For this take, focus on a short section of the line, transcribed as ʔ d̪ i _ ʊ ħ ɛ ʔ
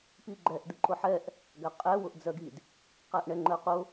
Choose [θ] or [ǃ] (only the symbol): ǃ